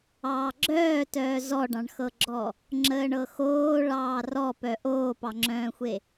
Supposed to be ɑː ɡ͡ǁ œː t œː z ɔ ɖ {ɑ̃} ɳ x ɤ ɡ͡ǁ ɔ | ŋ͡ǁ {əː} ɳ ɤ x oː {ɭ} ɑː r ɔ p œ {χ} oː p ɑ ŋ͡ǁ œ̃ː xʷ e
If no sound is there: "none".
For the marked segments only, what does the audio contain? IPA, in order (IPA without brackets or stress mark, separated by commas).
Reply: ɑ̃, əː, ɭ, ʔ